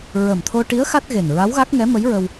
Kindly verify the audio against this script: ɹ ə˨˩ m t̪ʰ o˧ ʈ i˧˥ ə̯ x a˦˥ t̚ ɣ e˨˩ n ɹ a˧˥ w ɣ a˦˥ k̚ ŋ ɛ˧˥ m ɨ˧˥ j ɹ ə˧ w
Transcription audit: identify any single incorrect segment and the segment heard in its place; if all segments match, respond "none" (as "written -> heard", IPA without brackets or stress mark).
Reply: ɨ˧˥ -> ə˧˥